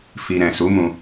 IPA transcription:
f i˧ ɾ ɛ̃˨ s u˨˦ m ũ˧

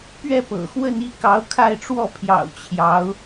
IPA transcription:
p ɥ ɛ˥˩ p ɤ̰˨˩ x w ə˥˧ n i˥˩ k ɑ˧˥ ʊ̯ kʰ a˥˧ ɪ̯ ʈ͡ʂ w ɔ˥˩ pʰ j ɑ̰˨˩ ʊ̯ t͡ɕʰ j ɑ˧˥ ʊ̯

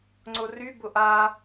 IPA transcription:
ŋ͡ǀ ʊ r y b ʊ ʔ a

